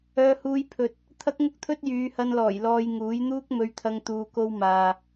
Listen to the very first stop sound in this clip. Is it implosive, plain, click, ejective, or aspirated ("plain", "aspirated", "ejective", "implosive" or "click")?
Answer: aspirated